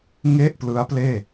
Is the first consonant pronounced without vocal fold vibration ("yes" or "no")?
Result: no